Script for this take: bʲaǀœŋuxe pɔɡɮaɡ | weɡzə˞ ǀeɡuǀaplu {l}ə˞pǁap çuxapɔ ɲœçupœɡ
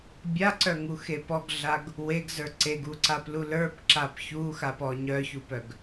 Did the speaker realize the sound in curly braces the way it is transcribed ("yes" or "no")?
yes